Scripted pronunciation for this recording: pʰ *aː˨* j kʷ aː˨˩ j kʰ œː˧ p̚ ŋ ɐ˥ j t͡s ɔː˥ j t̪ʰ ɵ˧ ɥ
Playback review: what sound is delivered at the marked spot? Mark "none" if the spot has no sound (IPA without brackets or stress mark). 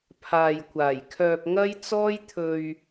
aː˨